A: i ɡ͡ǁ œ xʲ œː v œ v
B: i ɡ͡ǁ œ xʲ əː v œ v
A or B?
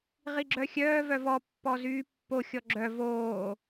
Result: A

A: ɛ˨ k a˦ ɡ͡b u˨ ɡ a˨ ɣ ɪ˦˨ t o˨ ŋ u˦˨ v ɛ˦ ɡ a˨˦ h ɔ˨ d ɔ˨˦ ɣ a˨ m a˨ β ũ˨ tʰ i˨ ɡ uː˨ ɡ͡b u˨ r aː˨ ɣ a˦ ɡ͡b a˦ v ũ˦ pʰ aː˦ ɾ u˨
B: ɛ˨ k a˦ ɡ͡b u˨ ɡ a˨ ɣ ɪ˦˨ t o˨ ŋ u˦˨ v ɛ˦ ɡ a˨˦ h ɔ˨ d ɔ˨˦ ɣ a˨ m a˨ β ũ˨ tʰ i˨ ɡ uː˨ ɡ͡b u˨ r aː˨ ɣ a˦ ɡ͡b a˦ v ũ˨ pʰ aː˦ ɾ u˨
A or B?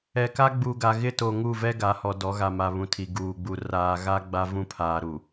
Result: A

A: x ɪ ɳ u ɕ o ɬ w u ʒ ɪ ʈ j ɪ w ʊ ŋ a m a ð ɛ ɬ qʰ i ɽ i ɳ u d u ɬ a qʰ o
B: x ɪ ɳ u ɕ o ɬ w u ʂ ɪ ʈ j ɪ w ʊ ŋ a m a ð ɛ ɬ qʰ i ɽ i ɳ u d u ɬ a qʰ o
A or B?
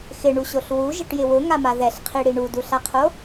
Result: A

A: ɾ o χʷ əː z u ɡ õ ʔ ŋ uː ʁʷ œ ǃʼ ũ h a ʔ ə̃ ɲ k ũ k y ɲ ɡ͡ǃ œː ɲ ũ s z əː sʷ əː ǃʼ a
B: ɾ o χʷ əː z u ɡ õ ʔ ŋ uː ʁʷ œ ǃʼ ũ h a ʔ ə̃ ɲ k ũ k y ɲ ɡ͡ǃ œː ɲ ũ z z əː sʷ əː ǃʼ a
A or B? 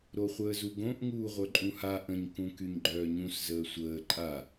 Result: A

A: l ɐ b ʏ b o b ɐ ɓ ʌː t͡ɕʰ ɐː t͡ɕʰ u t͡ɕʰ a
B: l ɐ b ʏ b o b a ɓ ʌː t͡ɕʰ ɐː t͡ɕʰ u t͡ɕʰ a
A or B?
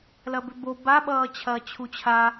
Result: B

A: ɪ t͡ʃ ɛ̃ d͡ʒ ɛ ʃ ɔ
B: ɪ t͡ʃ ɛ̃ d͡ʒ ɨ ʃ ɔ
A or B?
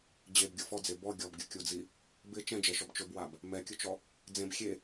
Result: A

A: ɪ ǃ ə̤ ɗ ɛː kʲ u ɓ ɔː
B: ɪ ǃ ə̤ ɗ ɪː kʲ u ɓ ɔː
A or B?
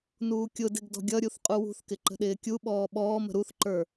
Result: B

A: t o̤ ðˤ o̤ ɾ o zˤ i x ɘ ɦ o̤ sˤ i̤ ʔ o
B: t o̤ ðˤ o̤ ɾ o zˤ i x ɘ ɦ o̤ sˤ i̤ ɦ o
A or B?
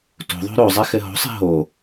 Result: B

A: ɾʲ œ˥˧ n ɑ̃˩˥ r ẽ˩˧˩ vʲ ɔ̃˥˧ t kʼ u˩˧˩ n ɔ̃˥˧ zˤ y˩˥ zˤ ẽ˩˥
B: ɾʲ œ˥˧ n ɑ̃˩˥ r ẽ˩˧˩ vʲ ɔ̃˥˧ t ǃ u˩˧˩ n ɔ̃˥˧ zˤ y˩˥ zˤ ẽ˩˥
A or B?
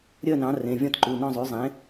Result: B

